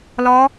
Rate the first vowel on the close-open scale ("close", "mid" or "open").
open